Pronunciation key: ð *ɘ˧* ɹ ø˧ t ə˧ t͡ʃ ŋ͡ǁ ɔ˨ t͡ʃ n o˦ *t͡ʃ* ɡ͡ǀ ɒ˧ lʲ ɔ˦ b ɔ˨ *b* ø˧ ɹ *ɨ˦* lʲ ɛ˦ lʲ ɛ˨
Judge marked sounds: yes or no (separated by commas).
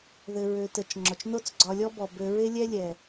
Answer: yes, no, yes, no